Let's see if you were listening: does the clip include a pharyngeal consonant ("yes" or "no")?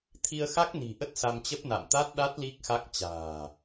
no